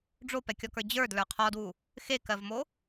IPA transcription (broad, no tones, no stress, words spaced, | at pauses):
ɖ͡ʐopɛkʲɔkə˞ d͡ʑə˞dlə˞ qʰɔdwu | xekɜvmo